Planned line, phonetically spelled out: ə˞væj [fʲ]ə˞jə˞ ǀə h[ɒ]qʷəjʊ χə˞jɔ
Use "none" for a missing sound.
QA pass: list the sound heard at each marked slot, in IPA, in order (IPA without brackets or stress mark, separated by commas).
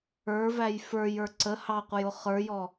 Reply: f, ɑ